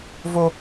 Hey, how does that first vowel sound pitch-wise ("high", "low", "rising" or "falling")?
high